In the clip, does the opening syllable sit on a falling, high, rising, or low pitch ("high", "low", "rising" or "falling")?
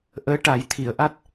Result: rising